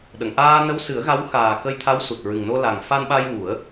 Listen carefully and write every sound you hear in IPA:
ɗ ə˨˩˨ ŋ ʔ aː˧ n ə˧˥ w s ɨ˨˩˦ ə̯ ɣ a˧˥ w x aː˨˩ k ə˧ j t̪ʰ a˧˥ w s u˨˩ t̚ ɹ ɨ˨˩ ŋ n o˧ l a˨˩ ŋ f a˧ n ɓ a˧ j w u˨˩˦ ə̯

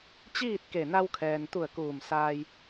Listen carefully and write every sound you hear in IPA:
t͡ɕ iː˥˨ t̚ k e˧˩ n a˧ w kʰ ɛː˩ n t̪ u˧˩ ə̯ k uː˧˩ m s aː˧ j

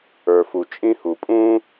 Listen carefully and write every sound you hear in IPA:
ə˞˩ f u˩ t͡ʃʼ ĩ˥ h u˩ pʼ ũː˥

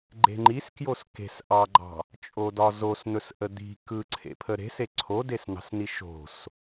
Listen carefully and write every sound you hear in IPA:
ɡ͡ǃ e̤ ŋ͡ǃ i s k j o s k e̤ s ʔ ɑ ɡ͡ǃ ɑ̤ | t͡ʃʼ o d ɒ z o s n̪ ɵ s ʔ ə d̪ i̤ k ɯ ǀʰ ḛ pʰ ə ɾ e̤ s e ǀʰ o d e s n ɑ̤ s n i ʃ o̤ s

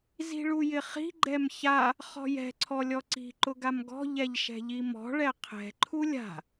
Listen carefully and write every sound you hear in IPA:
z i̤ ɭ u j ɪ χ i̤ ɡ͡ǃ ɛ m ç a | χ ɔ̤ j ɛ̤ ǀʰ ɔ lʲ ɔ ǀ i̤ ǃ ʊ ɡ a m ɡ ɔ̤ ʎ ɛ ʎ ʃ ɛ̤ ʎ i m ɔ̤ ɭ ɛ qʰ ɛ̤ ǃʰ u lʲ a̤

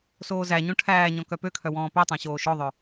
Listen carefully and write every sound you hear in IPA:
s oː z æ ɲ õ ʈʰ æː ɲ ɔ̃ k œ p ø kʰ œ w ɔ̃ː p ø tˤ æ̃ ɕ oː ʃ ɔ ðˤ œ

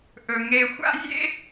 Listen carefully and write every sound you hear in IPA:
ʔ ɵ˧ ŋ e˧ xʷ a̰˥ zʲ ḛ˥

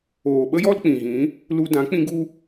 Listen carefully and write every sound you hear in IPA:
oː˨ ɓ ə˦ j ɔ˦ l k͡p ĩ˨ ɣ ĩ˨˦ | l u˧ d ã˨˦ k͡p ĩ˧ ɡ u˧

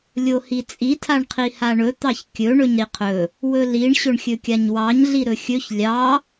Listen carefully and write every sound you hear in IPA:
lʲ o h i t͡sʼ i tʰ a ɳ qʰ i h a ɳ ɵ t̪ ɑ ç kʲ ɵ ɳ ɵ ɲ ɾ i qʰ ɵ | w ɵ l i ɳ ɕ ɵ ɳ xʲ ɵ kʲ a ɲ w ɑ ɲ ɮ i ɾ ɵ xʲ ɵ ç lʲ ɑ

